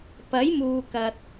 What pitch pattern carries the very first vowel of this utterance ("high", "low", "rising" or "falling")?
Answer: rising